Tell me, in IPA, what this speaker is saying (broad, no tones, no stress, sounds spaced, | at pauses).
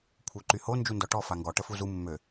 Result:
kʷʰ œ ǃ y h o n d͡ʒ u n d ɔ ʈ ɔ f a ŋ ɡ ɔ ʈ ə f u z u mː ø